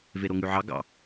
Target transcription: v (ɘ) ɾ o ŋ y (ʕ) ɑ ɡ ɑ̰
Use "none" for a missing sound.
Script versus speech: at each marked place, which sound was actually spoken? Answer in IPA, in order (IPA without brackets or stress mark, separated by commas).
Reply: e, ʕ